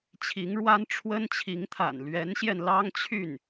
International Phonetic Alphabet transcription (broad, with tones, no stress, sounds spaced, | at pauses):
t͡ɕʰ i˧˥ ŋ ɻ w a˥ n ʈ͡ʂʰ w ə˥ n t͡ɕʰ i˧˥ ŋ t̪ʰ a̰˨˩ n l ɥ ɛ˧˥ n ɕ j ɛ˧ n l ɑ˥ ŋ t͡ɕʰ y˥˩ n